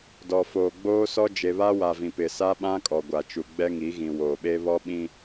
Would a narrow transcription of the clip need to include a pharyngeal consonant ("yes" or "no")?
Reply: no